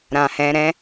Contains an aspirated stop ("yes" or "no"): no